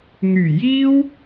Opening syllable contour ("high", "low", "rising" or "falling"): low